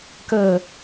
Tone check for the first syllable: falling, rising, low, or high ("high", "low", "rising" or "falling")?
low